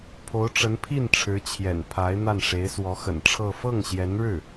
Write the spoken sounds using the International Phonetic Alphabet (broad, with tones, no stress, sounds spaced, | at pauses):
pʰ o˧˥ ʊ̯ ʈ͡ʂ ə˧˥ n pʰ i˥˩ n ʈ͡ʂʰ ɻ̩˧˥ t͡ɕʰ j ɛ̰˨˩ n pʰ a˧˥ ɪ̯ n̪ a˥˩ n ʂ e˧˥ ɪ̯ s w ɔ˧˥ x ə̰˨˩ n ʈ͡ʂʰ ɤ˥˧ f ɤ˥˩ ŋ ɕ j ɛ˧˥ n ɻ ɻ̩˥˩